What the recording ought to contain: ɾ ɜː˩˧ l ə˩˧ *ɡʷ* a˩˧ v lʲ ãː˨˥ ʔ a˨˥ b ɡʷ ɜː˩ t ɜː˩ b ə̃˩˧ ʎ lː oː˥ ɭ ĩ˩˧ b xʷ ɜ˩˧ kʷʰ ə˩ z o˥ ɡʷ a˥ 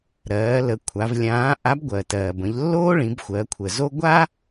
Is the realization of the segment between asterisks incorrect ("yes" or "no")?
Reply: yes